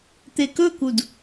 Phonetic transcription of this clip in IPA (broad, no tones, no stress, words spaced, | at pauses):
t̪ekɵkud